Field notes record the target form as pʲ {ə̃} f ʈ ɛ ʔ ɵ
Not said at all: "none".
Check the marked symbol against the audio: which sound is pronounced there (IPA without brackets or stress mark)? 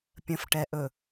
ə̃